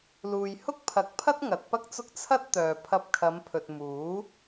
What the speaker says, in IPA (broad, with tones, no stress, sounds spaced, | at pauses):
l uː˨ j h ʊ˥ k̚ pʰ ɐ˨˥ k̚ pʰ ɐ˥ t̚ ŋ ɐ˨˥ t̚ p ɐ˥ k̚ t͡s ʊ˥ k̚ t͡sʰ ɐ˥ t̚ t̪ œː˨ pʰ ɐ˧ p̚ kʰ ɐ˨˧ m pʰ ɵ˨ t̚ m uː˨˥